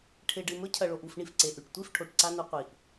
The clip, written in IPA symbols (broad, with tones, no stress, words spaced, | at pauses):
ʈʰe˨ɖɨ˨mɵ˧ cʰɐ˨ɭo˨ʔu˦˨f ɳi˨fǀe˨ʔʉ˨ʈ tʷi˦˨fʈʰo˨ʈ ǀa˦nu˧qʷi˨ʔ